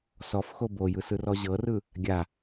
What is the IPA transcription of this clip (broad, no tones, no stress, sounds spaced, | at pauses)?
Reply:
s ɔ f x o b o j ɯ s ɯ r ɔ ʑ ɤ r ɯ | ɡʲ a